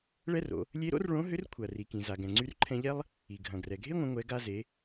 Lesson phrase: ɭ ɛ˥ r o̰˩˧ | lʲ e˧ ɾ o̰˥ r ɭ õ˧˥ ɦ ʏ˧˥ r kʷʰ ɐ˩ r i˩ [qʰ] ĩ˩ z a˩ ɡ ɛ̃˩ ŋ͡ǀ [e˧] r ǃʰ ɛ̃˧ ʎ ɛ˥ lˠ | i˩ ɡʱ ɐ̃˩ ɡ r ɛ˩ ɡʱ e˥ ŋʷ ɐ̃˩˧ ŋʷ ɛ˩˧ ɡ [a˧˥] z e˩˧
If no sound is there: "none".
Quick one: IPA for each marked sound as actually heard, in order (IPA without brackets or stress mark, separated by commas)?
k, y˧, a˧